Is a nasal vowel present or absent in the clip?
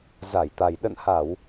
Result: absent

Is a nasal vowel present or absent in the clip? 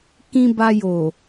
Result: present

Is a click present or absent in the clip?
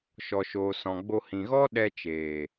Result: absent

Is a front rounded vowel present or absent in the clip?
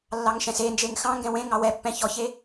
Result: absent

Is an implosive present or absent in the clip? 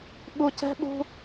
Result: present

